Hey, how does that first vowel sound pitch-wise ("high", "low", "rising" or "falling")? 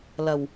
low